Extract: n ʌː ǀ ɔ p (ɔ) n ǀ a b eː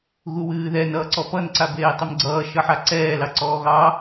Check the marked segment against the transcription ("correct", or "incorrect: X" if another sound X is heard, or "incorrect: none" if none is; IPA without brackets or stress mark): incorrect: ʌ